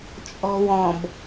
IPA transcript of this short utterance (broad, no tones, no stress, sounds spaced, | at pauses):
t͡ʃʼ ɔ̤ w ɔ̃ b